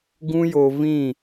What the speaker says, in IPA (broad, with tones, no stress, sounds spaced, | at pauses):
ɡ ũ˦ j o˧ v ĩ˦˨